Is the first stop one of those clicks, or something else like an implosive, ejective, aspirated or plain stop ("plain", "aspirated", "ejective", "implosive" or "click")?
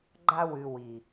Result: click